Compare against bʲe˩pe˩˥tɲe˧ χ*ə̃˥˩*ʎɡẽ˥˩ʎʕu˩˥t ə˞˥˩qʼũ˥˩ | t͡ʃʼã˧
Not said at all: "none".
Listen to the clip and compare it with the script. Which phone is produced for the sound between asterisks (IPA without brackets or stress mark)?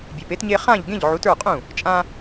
ã˥˩